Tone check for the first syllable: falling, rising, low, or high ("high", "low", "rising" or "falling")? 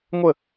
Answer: falling